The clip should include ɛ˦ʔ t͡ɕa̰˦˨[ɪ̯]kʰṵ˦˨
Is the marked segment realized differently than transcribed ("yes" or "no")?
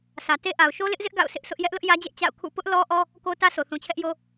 yes